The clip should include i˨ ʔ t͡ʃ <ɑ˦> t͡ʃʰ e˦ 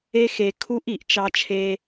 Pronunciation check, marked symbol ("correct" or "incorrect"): correct